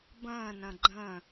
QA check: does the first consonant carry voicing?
yes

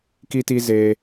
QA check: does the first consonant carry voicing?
no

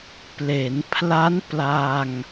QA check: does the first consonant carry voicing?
no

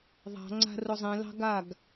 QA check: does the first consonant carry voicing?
yes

